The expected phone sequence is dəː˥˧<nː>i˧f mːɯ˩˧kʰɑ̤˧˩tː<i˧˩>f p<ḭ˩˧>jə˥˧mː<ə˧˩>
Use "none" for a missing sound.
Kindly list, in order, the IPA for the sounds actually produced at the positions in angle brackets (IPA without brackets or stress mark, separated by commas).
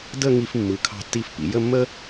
ŋ, i˧˩, ḭ˩˧, ə˥